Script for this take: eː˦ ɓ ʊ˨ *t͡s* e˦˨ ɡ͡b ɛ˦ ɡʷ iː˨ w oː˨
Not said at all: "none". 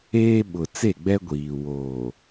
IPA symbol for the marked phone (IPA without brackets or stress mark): t͡s